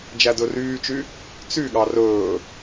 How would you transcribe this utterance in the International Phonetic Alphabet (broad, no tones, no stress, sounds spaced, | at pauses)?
d͡ʒ æ d ɵ r yː t͡ʃ y | t͡s y ɠ ɑ r ɵː